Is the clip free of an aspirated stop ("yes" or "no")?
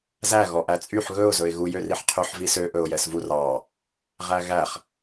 no